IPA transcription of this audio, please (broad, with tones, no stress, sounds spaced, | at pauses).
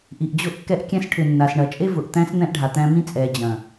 ʔ i˨ ʔ d͡ʑ ʊ˦˨ ʔ kː ɛ˦ ʔ kʲ ɛ̃˦ s ʈʰ ʏ˨ nː a˨ s ɳ ɐ˨ t͡ʃʼ e˦ v ʊ˨ ʔ t̪ æ̃˦ s n̪ ɛ̃˦ ʔ ɖʱ a˨ t̪ æ̃˦ m ĩ˦ t͡sʼ ɛ˨ d͡ʑ ɐ̃˨